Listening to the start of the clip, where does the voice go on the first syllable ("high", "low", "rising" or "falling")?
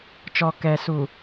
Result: low